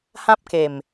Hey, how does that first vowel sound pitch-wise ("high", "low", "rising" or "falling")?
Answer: high